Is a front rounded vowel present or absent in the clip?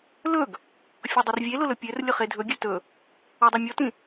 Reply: present